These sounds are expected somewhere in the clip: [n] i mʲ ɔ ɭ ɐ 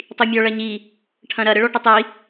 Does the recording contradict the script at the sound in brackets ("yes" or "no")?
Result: yes